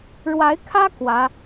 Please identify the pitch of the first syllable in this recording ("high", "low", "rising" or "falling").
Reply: rising